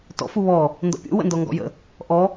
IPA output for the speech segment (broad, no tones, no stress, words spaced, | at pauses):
tɔ̰ fuβɔ | ndɔ̰pʲṵ wə̰ndɔŋɡɔ̰jə̰ | ʔɔ